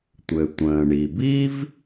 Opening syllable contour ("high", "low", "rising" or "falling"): low